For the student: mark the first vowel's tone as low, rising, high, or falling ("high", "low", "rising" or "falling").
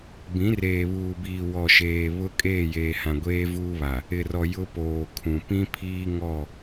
rising